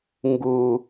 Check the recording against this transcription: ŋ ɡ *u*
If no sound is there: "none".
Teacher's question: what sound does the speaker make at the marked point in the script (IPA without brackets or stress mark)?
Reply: u